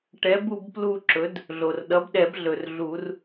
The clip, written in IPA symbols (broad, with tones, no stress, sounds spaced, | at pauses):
ʈ ɛ˩˥ b u˦˨ b p l u˦˨ ǁ ɵ˩˥ d | ɮ o˩ r ɗ ʌ˩˥ b ɗ ɛ˨˩˦ b ɮ ɵ˩ r ɮ u˨˩˦ r